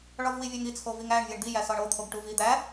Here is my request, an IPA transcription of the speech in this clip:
ɭ ɒ v w i vʲ æ ŋ i t͡sʰ o v i ŋ æ ɳ vʲ e ɳ d̪ i j æ s ɒ ɳ o t̪ʰ o ɡ ʈ u v i d̪ æ

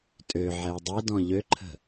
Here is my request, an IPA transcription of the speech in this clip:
tʼ ø ʕ ɛ u̯ dˤ e d ɔ̃ ʎ ø ǃʰ ə̤

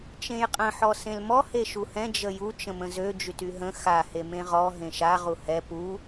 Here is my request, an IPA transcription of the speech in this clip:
t͡ʃ ẽ j qʼ ə̃ ħ ɔ s ẽ l m ɔ h e ʃ u h ɛ̃ d͡ʒ ə j u t͡ʃ ə̃ m ə̃ z ø d͡ʒ y t y ɦ ə̃ x a h e m ẽ ʁ ɔ ɦ ẽ ʃ a ʁ u h ɛ p u

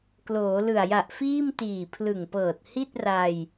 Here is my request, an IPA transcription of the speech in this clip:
k l oː˩˦ l ɯ˨˩ a̯ j a˨˩ ʔ f iː˥˩ m t iː˨˩ pʰ l ɯ˨˩ ŋ p ɤː˨˩ t̚ h i˥˩ t̚ r a˧ j

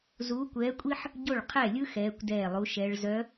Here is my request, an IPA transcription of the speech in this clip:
z uː˧˥ kʷ ɛː˧˥ kʷʼ i˥ ħ | ɟ o˥˩ ɭ qʰ ɛ˥˩ lʲ ɯ˥ x ɛː˧˥ kʷ d ɛː˥˩ lˠ u˧˥ ʃ ɛ˧˥ ɭ z œ˧˥

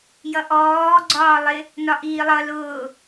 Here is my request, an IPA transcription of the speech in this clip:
j ʌ ʔ ɔː ɡ͡ǀ ɒː lˠ ɪ | n ɒ ʔ iː lˠ ʌ l ʊː

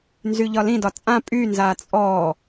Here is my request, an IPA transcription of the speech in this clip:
n z y ʎ ɒ l ĩ d ɒ t͡sʼ ã pʼ y n z aː t͡sʼ ɔ

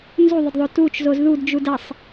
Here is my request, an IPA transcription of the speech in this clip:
n z u ðˤ ə d ðˤ o t u t͡ʃ z o z ð u d d͡ʒ u d ɐ sˤ

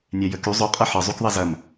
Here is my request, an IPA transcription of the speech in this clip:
nʲ ɛ j ə k y zˤ ʏ qʼ ɐ ħ ə zˤ y k ðˤ ɐ z ɐ m

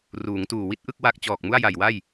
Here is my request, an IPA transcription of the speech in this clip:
r uː˩˦ ŋ t uː˨˩ w i˦˥ t̚ ʔ ɯ˥˩ k̚ w a˥˩ k̚ t͡ɕ ɔː˨˩ k̚ m u˥˩ a̯ j a˨˩ j w a˥˩ j

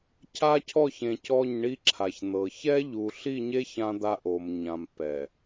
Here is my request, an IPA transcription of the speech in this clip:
cʰ a˦ cʰ ɔ˦˨ ç ẽ˨ c ɔ˦˨ ɲ ɳ i˦ ǁʰ a˨ ç n̪ ɤ˨ ç ɛ˦ ʎ u˨ ɬ i˦˨ ɲ e˦ ç ã˦ d̪ a˦ ʔ o˨ m ɲ ã˨ m p ɛ˨

